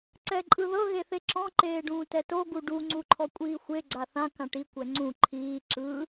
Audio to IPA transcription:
ǀ ɛ ǃʼ ɯ ð ɤ ɣ e θ e ǁ ɔ̃ ǃ eː ɖ ũː t ɛ t o ɡ u ɖ u ŋ͡ǀ u ǃʰ ɔ kʷʼ iː xʷ e ɡ͡ǀ a θ ã k ã ʈ i kʷ ɛ ŋ͡ǀ ũ ǃʰ iː ǁ ɯ

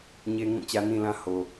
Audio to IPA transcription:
ɲ e˦ ŋ ũ˦˨ t͡ɕ ä˦ n ĩ˦ l ã˦ h o˨

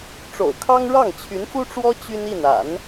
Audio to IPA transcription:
ʈ͡ʂ o̰˨˩ ʊ̯ kʰ ɑ˥ ŋ ɻ ɑ˥˩ ŋ t͡ɕʰ y˧˥ n f u˥ ʈ͡ʂ w ɔ˥ t͡ɕ y˥ n i˥˩ n a̰˨˩˦ n

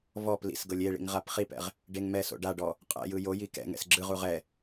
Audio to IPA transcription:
v ɔ p l ḭ s ɡ ɤ lʲ e ɭ ḭ ŋ ʁ a p χ i p ɛ̰ ʁ | ɖ e ŋ m ɛ s o̰ ɖ a ɖ ɔ | qʼ ɛ̰ j ɯ j o j i k ɛ̰ ŋ ɛ̰ s ɡ͡ǁ ɯ ʁ u ʁ ɛ

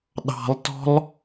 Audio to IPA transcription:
ɗ ɑ̤ lˠ t ɔ̤ lˠ

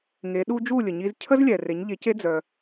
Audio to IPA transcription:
ŋ e˨˦ ɗ u˦ d͡ʒ u˦˨ lʲ ə˨ ɲ i˧ z cʰ ə˦ z lʲ ɛ˨ r e˨˦ ɲ ʎ e˨˦ c e˦ d͡z œ˧

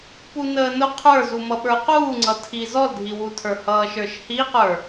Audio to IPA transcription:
p u n əː n ʊ qʰ ə˞ z u m ʌ ɓ ə˞ q uː ŋ͡ǀ ʌ tʰ i z ɔ l dʱ i w u tʰ ə˞ h ʌː ʃ ə˞ ʃ h i q ə˞

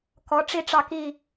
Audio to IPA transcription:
k ɔ˧˥ ʈ͡ʂ i˥˧ ʈ͡ʂ ɑ˥˧ k i˥˧

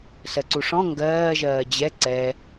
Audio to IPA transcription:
s ɜ ǀ u ʂ ɔ̃ ŋ ɡ ɜː ʒ ɜː d͡ʑ ɛ ǀ ɛ

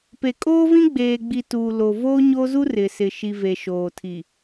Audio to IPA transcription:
p e˨ kʼ oː˦ v ĩ˦ ɡ͡b eː˨ ɡ͡b i˨ t uː˨ l o˨ v oː˦ ɲ o˦ z u˦ r ɪ˨ s ɪ˨ ʃ i˨ v e˨ ʃ oː˨ tʰ i˨

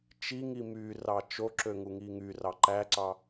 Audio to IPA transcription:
t͡ʃ i ŋ i m y r ɑ t͡ʃ o ǁ ø ŋ u ŋ i ŋ y r ɑ ǃ æ ǀ ɑ

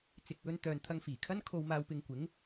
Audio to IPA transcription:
t͡s ɪ˨ k̚ w ɵ˧ n t̪ œː˨ n t̪ʰ ɐ˧ ŋ f iː˨˩ kʰ ɐ˥ n kʰ o˧ w m aː˧ w p ɪ˧ ŋ kʷ ɪ˨˥ ŋ

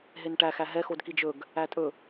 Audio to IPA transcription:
ɦ e n ʈ æ x æ ɦ ɛ x o d k i d͡ʒ ɵ ɡ | æ tʼ ɵ

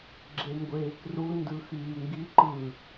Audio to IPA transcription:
ɡ͡ǁ e n ɡʷ eː k r u n d ɯ x yː ŋ ɡ i ǃ ɯ

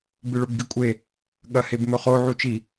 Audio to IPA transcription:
b ɨ ɭ ɵ b ɡ i kʷʼ e | ɠ ɐ h e b m ɵ χ o ʕ u t͡ʃ i

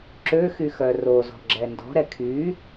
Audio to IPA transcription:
ǁ ø x y x œ r o z ɔ̤ ɡ͡ǁ ɛ n d ɔ̤ ɾ ɛ kʰ y

